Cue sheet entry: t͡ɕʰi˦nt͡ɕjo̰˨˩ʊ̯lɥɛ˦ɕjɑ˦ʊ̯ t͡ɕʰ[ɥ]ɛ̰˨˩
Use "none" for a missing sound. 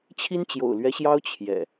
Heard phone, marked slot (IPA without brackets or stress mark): j